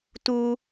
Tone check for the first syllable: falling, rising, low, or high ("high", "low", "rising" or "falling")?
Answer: low